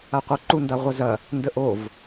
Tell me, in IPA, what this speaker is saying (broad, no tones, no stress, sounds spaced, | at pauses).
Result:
a qʷ ɐ ǃ u n d a ʁʷ ɐ z ɐ | n d ə ʔ o v